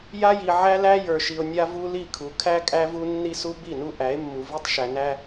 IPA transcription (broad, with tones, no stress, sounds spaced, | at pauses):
j a˦ j i˨ ʕ æ˦ l æ˦ j ə˞˨ ʃ i˨ o̯ nʲ a˦ v u˦ l i˦˨ kʰ u˨ kʰ æ˦ kʼ æ˦ v u˦ nː i˦ s u˦ b i˦˨ n u˦ ʔ æ˨˦ e̯ mː u˨ v i˦ tˤ ʃ æ˨ n æ˦